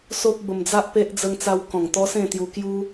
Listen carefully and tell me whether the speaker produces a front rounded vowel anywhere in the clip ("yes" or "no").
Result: no